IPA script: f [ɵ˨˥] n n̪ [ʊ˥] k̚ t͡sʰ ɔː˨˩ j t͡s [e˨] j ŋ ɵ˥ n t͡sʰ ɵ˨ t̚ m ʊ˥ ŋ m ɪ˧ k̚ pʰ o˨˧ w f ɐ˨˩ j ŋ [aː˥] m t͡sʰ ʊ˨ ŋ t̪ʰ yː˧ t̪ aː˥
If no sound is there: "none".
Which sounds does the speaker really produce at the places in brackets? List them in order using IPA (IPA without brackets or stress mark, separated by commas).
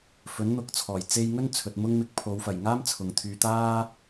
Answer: ɵ˨˥, ʊ˨, e˧, aː˥